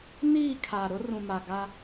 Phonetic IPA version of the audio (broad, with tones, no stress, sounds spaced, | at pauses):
n iː˦˨ kʰ aː˨ ɾ ʊ˦ r ũ˨ m a˨ ɡ a˦